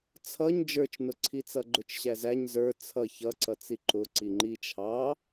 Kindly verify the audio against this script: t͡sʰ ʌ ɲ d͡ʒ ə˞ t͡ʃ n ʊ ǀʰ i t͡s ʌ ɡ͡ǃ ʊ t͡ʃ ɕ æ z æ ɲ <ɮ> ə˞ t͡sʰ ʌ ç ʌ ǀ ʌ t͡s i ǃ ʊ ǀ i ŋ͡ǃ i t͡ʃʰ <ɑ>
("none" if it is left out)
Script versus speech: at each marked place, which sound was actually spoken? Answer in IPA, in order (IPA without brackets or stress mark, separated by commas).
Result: z, ɑ